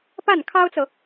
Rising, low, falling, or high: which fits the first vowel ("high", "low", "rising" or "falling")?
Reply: falling